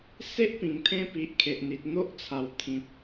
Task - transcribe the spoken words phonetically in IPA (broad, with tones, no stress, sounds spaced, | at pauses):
s e˦ ʔ p ĩ˨˩ ŋ t̪ʰ ẽ˧ p i˨ ʔ kʰ e˨ ʔ n̪ i˨ t̚ n̪ o˦ ʔ t͡sʰ a˨˩ w t̪ʰ ĩ˨ p̚